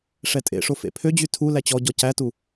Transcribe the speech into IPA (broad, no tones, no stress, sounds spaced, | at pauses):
ʂ ɛ tʼ ḛ ʂ o f ḛ pʰ ø d͡ʑ y tʰ u l æ t͡ɕ ɔ ɟ ɔ c æ t u